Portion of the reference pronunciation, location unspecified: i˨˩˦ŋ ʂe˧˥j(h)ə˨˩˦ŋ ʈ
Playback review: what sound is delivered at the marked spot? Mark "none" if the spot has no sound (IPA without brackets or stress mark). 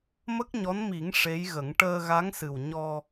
ɣ